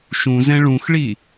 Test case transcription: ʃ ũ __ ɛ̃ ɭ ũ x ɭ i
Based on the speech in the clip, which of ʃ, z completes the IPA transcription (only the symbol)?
z